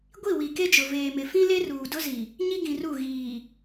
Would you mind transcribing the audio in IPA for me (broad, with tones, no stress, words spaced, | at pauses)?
ɡʷi˦˨wi˨ke˦d͡ʒʊ˨ veː˨mɪ˨ fĩ˦ le˦ruː˨dʊ˦zi˨ | ɲi˦ɡĩ˨ru˦˨ ɣiː˨